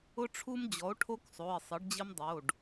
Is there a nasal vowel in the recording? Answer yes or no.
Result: no